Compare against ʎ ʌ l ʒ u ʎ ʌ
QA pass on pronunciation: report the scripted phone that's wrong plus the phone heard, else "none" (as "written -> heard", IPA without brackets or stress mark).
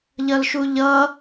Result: ʒ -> ʃ